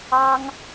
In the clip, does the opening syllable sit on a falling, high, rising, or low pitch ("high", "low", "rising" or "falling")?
high